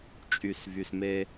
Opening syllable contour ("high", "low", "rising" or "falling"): low